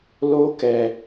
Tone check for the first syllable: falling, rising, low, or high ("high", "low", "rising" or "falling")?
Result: high